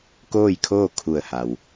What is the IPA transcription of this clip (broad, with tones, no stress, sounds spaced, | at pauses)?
k oː˥˨ j kʰ oː˥˨ kʰ u˧˩ ə̯ h a˩ w